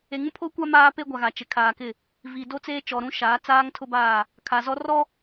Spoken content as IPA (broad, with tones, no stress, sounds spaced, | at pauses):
e˨ ŋ ũ˦ pʰ o˦ kʷ a˦ m aː˦ p e˦ ɡʷ a˨ ɣ a˨ t͡ʃ ɪ˨ kʰ aː˨ k ɪ˦˨ | v i˨ d o˦ t͡s eː˦ t͡ʃ ɔ˨ ɾ ũ˦ ʃ aː˨˦ t͡s aː˦ ŋ tʰ ʊ˦ b aː˦˨ | kʰ a˨ z ɔ˦ r ɔ˦